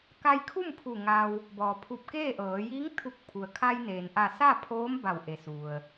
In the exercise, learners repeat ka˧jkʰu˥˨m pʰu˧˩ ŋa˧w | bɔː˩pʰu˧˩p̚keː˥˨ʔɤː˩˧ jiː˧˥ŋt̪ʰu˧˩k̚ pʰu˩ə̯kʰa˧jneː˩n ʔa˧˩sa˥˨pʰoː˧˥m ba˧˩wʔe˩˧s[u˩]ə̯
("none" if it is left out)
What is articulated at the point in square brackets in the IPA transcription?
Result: u˩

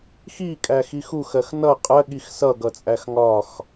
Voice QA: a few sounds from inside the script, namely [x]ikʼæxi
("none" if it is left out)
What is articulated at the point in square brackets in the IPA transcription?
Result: x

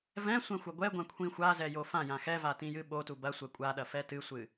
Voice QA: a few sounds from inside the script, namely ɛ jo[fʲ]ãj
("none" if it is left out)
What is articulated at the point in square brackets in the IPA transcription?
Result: f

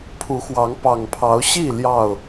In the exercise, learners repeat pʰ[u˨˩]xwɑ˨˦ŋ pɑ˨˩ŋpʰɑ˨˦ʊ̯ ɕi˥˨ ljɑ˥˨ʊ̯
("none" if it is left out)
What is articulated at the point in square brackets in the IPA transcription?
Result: u˨˦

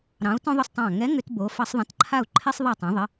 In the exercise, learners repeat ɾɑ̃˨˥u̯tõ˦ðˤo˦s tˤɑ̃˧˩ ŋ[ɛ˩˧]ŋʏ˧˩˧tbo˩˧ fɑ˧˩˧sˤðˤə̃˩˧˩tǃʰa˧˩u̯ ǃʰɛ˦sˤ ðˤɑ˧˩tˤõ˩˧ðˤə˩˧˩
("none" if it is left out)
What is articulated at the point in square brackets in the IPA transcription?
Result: ɛ˨˥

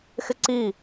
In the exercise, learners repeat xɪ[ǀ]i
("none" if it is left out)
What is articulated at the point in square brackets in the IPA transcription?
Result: ǀ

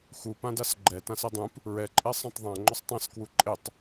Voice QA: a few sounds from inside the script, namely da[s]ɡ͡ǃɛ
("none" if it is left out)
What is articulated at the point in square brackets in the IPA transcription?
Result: s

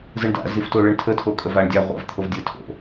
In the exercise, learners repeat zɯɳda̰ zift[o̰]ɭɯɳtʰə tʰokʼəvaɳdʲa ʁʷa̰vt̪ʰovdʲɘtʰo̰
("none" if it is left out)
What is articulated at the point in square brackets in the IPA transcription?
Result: o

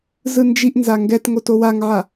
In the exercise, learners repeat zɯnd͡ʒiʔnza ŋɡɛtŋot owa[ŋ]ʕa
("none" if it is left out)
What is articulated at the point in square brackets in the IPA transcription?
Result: ŋ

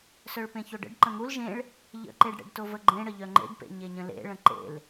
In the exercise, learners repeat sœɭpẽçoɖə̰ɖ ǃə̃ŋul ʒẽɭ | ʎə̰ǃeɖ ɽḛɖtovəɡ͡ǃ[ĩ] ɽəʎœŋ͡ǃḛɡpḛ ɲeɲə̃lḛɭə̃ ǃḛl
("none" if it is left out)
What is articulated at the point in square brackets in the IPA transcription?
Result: ẽ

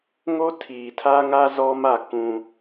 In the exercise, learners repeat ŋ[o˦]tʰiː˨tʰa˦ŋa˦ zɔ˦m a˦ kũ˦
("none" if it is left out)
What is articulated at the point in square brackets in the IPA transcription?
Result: o˦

